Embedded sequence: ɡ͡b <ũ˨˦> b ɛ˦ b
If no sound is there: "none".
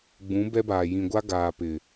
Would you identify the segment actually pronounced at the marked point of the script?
ũ˨˦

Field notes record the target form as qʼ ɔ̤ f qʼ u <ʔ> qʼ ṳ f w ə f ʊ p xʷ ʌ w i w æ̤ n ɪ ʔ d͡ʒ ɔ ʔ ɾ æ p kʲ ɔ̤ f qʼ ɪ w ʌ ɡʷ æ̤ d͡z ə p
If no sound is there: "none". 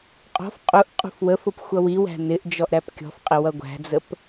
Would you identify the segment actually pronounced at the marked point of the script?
ʔ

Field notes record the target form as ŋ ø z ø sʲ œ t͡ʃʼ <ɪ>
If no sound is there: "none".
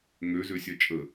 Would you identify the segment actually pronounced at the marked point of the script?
ə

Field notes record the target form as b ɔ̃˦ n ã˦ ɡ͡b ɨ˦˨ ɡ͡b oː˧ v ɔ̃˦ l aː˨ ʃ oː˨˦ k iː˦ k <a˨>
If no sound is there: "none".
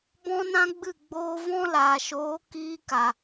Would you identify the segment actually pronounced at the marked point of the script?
a˨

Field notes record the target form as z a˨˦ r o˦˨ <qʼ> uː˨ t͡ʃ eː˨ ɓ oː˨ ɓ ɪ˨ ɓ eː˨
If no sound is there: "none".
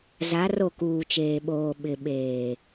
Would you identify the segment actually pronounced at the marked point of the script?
k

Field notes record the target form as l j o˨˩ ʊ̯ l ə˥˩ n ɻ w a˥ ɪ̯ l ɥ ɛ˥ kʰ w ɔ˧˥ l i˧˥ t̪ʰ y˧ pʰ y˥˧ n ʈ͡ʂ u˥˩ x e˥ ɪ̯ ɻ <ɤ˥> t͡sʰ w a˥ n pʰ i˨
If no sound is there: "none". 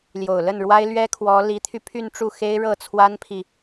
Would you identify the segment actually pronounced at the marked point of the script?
ɤ˥˩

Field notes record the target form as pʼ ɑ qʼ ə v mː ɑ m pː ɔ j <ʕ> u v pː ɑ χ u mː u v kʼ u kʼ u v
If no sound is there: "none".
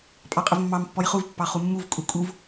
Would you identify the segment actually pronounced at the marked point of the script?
χ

